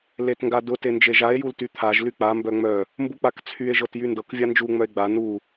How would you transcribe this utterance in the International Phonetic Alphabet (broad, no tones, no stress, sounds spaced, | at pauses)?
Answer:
l e t ŋ ɡ a d ʊ t e n d͡ʒ e ʒ a e̯ j u l t y t̪ʰ a ʒ l y k͡p a m b œ ŋ͡m œ | m b u k͡p a k t͡sʰ y e̯ ʒ ɤ t j y n d ɤ k vʲ a n d͡ʒ u ŋ͡m œ e̯ ɡ͡b a n u